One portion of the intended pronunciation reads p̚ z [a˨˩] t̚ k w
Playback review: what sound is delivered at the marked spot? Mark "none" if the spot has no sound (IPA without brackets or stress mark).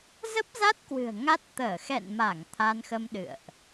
a˦˥